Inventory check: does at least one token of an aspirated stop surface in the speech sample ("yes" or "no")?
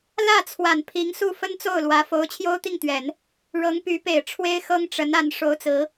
yes